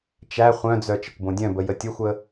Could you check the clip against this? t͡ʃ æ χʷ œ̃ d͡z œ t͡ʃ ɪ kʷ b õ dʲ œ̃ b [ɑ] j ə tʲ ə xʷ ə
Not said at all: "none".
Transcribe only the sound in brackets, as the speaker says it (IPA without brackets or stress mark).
ə